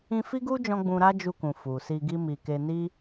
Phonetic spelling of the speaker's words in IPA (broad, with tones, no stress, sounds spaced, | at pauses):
ĩ˧ f i˦ ɡ u˦ d͡ʒ ɔ̃˧ ɡ͡b ũ˧ ɾ a˦ d͡ʒ u˧ k ũ˨ f u˨ s i˧ ɡ i˦ m i˧ k e˧ n i˦